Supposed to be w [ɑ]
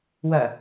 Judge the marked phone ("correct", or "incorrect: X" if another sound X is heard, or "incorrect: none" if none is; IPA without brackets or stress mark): incorrect: ɐ